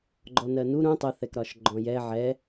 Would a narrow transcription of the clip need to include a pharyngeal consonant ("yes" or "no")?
yes